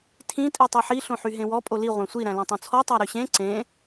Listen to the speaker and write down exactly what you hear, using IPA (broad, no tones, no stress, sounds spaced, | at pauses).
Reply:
tʰ ĩ tʼ i tˤ o ħ i ɬ õ ħ y ɦ ẽ w ɔ pʼ o l i ʁʷ æ̃ sʷ i ɾ æ̃ l õ tˤ õ t͡sʰ ɔ tˤ æ ɾ y ɕ ẽ ǀ ẽ